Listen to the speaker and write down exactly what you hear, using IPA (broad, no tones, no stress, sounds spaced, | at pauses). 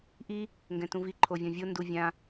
ʔ i | ŋ ɡ ɛ̃ t ũ v i ǃʰ o vʲ ɔ̃ vʲ o n d u vʲ ã